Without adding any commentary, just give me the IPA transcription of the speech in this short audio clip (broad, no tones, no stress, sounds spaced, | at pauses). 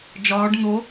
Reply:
d͡ʒ ɒː ɖ n̪ o